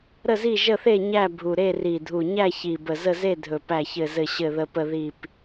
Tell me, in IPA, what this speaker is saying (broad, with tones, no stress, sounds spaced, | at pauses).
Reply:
ɾ ə˥˨ z i˥˨ ʒ ə˥˨ θ e˥˨ ɲ æ˥˨ bʱ u˨˩ ɾ e˥˨ r i˨˩ dʱ u˨˩ ɲ æ˥˨ ç i˨˩ b ə˨˩ z ə˥˨ z e˥˨ dʱ ɵ˨˩ p æ˨˩ ç ɘ˨˩ z ɘ˨˩ ɕ ɘ˨˩ ð ə˨˩ p ə˨˩ ð i˨˩ p